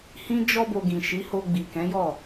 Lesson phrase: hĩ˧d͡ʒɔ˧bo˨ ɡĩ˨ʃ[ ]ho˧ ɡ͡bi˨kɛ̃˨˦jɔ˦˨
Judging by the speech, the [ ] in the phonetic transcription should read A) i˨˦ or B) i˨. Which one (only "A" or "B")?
A